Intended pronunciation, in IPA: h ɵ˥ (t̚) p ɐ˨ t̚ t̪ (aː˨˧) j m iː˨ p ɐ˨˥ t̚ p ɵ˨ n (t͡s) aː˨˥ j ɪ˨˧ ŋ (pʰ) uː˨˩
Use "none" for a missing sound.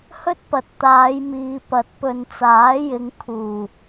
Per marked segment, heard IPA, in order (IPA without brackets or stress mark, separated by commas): t̚, aː˨˧, t͡s, kʰ